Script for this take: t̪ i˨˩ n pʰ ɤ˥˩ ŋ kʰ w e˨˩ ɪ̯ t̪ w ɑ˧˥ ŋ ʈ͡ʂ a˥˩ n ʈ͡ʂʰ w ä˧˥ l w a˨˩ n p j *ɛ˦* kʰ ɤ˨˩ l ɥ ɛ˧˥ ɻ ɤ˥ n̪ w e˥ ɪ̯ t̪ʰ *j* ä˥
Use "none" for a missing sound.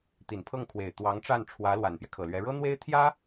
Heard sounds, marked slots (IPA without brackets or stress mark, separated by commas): ɛ˦, j